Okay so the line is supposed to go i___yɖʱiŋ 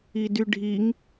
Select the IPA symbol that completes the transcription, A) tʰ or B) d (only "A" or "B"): B